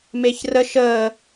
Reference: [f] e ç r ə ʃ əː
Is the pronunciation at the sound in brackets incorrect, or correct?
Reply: incorrect: m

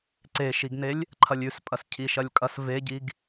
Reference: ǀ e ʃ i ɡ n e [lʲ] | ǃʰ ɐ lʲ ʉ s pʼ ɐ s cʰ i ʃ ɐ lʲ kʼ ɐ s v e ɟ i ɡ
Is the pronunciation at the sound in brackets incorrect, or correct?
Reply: correct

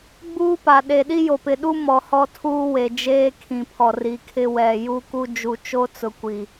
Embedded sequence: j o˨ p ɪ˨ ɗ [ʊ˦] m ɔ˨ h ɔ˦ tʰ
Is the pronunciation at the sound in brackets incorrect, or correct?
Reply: incorrect: u˦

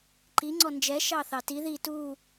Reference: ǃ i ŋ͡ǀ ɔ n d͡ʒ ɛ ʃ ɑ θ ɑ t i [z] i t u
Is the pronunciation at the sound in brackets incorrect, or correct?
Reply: incorrect: ð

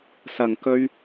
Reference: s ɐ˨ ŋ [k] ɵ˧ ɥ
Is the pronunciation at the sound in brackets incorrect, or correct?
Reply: correct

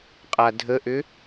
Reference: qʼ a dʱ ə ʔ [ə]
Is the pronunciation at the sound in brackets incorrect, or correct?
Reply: incorrect: ʏ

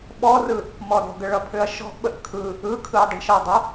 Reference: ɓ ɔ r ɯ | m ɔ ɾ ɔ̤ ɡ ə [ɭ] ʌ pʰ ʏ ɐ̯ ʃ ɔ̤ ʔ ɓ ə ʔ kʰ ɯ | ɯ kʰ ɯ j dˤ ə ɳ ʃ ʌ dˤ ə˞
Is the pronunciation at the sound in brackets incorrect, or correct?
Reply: correct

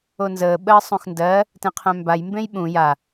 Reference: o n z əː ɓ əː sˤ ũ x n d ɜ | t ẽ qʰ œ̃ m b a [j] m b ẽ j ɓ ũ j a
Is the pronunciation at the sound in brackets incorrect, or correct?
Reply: correct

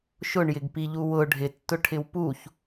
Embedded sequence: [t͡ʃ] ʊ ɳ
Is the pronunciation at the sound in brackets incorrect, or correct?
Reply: incorrect: ʃ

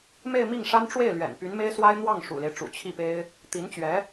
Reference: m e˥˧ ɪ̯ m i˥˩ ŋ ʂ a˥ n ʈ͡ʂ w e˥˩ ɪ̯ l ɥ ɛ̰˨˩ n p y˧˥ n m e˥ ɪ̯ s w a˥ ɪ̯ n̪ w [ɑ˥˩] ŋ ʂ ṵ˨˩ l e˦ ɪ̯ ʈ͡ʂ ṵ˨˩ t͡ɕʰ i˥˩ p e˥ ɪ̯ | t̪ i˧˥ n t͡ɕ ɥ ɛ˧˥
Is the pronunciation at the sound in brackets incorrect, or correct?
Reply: correct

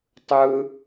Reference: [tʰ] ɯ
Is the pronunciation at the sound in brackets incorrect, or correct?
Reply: incorrect: tˤ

